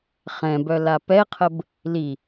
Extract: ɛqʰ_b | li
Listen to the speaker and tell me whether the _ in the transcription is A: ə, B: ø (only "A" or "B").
A